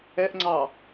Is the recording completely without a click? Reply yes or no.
no